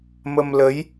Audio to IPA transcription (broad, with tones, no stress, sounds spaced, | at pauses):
m ə˧ m l ə˧˥ j